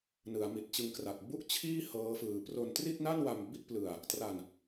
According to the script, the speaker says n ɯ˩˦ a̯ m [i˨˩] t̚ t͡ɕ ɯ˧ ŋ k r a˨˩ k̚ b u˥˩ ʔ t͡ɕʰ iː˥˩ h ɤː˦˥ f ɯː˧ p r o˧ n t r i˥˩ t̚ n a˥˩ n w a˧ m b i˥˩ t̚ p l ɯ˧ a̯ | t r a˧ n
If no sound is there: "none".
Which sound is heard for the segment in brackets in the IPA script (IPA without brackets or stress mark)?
i˨˩